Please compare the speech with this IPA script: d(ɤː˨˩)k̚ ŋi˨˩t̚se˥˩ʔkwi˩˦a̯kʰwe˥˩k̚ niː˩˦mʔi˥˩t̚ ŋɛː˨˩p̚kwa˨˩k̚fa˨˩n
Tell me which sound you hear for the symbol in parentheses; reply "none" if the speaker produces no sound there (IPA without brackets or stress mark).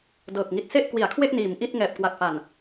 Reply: ɤː˨˩